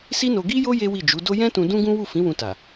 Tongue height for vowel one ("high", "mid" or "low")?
high